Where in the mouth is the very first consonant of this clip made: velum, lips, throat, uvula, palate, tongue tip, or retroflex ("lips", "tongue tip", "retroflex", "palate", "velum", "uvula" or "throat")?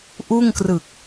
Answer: throat